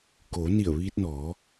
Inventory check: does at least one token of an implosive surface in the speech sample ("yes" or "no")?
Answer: no